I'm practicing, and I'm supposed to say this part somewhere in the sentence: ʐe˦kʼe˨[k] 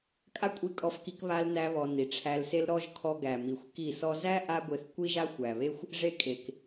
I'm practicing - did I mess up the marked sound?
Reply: no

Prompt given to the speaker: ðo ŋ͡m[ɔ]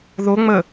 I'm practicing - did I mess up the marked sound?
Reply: yes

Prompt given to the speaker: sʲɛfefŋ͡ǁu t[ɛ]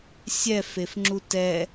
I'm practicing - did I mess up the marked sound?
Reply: no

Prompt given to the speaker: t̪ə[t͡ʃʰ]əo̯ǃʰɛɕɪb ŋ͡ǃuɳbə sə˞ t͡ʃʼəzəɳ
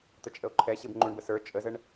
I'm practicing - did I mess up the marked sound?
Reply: yes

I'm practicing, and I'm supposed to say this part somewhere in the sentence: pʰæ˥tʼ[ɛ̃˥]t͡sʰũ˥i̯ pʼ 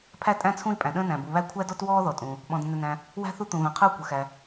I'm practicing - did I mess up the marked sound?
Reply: yes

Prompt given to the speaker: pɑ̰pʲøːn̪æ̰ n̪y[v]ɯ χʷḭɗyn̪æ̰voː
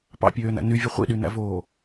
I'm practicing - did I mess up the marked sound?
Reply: yes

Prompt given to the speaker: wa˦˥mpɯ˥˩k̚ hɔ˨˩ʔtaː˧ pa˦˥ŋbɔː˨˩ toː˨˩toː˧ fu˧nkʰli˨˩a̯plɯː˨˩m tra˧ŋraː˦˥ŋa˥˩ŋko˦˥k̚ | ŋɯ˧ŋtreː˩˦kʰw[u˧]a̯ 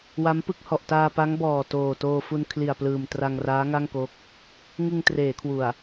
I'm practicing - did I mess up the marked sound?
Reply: yes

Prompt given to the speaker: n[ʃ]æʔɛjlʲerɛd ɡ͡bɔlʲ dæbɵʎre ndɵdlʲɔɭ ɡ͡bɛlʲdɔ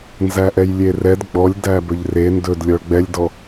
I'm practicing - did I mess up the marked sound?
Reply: yes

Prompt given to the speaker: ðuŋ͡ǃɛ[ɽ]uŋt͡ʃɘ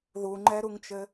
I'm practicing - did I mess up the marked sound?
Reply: yes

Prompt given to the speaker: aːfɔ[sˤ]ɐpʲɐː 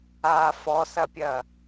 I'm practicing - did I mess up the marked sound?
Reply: yes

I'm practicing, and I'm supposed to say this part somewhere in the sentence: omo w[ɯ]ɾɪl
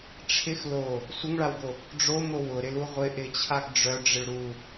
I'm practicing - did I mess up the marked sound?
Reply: yes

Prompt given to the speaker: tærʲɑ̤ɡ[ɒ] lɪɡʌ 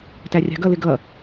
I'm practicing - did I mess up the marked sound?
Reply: yes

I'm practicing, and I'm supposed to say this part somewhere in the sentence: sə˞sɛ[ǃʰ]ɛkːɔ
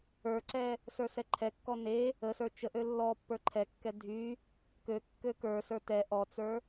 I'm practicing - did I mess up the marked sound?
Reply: no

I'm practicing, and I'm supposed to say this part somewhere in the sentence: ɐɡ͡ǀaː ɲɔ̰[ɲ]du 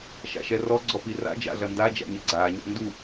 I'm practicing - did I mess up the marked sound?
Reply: yes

